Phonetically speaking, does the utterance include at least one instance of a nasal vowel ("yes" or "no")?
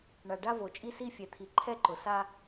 no